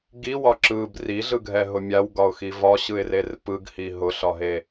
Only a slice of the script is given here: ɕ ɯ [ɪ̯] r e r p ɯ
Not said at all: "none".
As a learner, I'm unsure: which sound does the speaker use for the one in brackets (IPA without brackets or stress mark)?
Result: ɪ̯